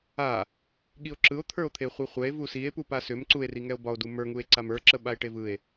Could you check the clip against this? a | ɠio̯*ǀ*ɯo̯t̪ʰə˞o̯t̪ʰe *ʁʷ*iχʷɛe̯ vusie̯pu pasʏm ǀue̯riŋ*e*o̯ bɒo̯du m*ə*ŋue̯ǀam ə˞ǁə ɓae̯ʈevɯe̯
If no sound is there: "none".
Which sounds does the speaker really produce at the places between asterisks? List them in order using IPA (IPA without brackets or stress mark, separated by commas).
ǁ, χʷ, ɛ, ə˞